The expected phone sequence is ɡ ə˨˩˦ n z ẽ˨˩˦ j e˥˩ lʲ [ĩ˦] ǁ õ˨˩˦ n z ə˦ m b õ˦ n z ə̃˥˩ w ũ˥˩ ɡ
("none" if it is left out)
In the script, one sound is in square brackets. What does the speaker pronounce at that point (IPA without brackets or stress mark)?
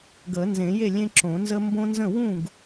ẽ˦